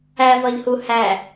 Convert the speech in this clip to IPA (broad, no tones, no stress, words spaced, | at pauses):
ævɒʎhu hæ